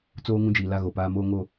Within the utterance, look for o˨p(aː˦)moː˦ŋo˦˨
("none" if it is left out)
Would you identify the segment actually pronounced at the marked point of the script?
aː˦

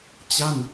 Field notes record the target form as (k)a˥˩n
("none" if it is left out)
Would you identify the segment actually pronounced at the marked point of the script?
t͡ɕ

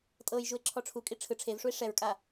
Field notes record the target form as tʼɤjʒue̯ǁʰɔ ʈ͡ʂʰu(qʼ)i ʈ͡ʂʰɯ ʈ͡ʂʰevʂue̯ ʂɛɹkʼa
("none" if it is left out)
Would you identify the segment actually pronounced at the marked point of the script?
kʼ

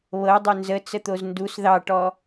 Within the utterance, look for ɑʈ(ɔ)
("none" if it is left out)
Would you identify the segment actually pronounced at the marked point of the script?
ɔ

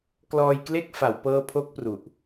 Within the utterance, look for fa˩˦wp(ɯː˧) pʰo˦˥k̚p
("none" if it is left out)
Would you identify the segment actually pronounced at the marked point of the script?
ɤː˧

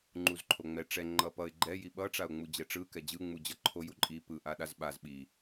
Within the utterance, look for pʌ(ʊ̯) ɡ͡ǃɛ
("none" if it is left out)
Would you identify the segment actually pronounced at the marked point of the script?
ɪ̯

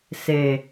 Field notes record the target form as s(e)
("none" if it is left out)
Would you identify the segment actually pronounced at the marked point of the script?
e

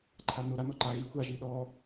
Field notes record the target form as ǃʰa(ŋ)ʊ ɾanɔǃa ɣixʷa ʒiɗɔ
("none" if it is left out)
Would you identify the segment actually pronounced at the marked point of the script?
n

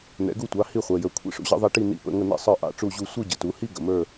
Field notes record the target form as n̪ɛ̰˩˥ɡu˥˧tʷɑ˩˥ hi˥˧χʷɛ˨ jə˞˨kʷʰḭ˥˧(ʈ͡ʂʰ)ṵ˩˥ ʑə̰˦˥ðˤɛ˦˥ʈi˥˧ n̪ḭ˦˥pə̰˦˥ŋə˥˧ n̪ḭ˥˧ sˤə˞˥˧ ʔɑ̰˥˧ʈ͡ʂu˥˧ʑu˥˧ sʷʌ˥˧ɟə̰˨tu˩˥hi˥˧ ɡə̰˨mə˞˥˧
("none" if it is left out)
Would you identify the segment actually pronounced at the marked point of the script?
ʂ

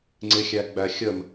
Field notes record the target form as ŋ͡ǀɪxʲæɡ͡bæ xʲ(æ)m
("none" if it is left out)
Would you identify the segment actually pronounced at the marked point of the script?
ə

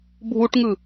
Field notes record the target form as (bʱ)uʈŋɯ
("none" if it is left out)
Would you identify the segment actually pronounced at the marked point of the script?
bʱ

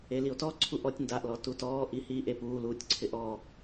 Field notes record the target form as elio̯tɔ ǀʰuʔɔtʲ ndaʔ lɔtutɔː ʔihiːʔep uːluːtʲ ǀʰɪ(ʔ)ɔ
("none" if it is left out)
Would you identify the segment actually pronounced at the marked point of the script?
ʔ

